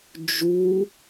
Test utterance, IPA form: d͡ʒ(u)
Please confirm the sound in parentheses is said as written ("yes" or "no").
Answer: yes